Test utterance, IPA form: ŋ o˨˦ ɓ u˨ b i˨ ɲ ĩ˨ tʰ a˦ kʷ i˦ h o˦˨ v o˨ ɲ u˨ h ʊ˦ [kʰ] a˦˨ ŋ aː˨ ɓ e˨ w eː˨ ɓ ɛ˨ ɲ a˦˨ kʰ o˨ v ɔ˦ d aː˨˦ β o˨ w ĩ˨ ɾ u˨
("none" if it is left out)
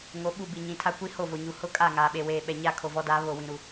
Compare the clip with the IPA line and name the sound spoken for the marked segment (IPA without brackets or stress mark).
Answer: kʼ